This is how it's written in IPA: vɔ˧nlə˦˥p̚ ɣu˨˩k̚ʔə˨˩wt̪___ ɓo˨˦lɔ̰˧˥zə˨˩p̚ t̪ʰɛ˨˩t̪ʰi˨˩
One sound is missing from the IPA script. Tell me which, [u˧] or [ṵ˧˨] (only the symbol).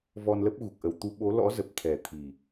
u˧